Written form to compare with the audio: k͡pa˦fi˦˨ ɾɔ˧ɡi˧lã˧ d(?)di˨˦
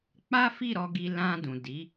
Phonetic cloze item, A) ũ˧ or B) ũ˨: B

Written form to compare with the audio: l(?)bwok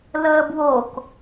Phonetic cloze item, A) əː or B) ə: A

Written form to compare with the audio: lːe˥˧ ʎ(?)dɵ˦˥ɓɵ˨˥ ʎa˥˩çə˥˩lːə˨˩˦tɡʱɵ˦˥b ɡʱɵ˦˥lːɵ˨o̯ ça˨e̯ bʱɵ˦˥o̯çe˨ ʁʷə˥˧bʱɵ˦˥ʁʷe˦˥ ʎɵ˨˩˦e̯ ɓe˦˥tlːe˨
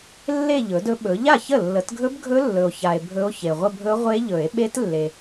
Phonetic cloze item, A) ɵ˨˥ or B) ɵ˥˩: A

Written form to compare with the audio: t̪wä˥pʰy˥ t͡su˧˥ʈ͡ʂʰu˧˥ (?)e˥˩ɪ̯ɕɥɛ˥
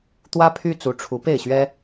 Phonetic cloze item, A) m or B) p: B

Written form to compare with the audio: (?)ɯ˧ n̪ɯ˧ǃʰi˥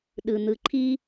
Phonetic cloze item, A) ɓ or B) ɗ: B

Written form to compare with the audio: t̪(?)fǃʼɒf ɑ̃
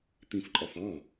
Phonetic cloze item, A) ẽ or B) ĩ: B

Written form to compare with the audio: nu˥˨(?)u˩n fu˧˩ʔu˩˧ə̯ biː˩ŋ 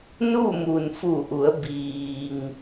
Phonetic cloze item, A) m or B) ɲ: A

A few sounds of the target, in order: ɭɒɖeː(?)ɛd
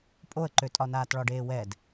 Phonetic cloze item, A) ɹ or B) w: B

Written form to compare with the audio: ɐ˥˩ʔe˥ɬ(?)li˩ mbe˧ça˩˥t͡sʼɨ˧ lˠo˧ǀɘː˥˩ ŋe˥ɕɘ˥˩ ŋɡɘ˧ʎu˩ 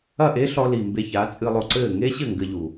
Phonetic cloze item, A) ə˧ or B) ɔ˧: B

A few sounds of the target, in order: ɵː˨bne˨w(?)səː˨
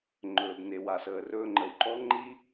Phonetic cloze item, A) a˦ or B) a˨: B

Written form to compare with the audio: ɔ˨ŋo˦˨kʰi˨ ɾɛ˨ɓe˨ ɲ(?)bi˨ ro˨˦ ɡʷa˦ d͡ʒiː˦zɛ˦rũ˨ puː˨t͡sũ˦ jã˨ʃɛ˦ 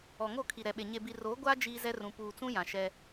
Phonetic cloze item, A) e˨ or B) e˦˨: A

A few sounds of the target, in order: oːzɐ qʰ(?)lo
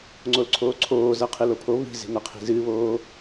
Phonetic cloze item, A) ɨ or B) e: A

